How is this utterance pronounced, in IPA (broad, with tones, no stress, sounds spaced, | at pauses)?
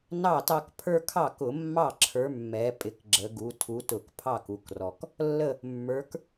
n ɑ˥˩ t ɑ˦ k pʰ ə˞˦ kʰ ɑ˥˩ k ʊ˧˩˧ mː ɑ˥˩ ǁʰ ə˞˩˥ mː ɛ˩˧ pʼ ɪ˩˧ k ɡ͡ǁ ə˩˧ ɡ u˩˧ tʰ u˩˥ t ʊ˧˩˧ k pʰ ɑ˥˩ k u˩˥ k r ɔ˩˧ k | lː ə˥˩ | mː ə˞˩˥ k